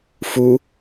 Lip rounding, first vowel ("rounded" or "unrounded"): rounded